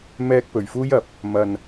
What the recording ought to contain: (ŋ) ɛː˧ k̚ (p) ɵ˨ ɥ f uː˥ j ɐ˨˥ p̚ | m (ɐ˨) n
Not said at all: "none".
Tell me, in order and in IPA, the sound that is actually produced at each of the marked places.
m, p, ɐ˨

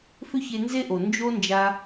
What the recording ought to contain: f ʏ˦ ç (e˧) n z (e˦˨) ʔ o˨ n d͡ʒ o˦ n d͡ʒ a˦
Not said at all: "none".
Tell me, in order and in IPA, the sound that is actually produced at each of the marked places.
e˧, e˦

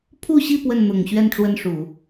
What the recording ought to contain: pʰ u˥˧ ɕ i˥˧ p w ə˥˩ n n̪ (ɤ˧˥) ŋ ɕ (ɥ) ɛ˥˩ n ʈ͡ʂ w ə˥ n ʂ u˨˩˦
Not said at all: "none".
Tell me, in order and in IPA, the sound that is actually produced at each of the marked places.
ɤ˨˩, ɥ

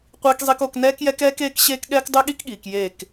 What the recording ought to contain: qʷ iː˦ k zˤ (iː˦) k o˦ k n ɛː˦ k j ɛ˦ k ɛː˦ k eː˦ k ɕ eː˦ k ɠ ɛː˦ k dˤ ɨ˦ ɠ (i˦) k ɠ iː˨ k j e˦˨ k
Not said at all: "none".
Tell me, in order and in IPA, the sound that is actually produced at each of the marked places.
i˦, i˦

